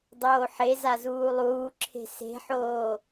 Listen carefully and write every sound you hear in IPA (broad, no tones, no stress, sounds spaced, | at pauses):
dˤ oː ħ e z a z uː lˠ uː ǁʰ e̤ s e̤ ħ oː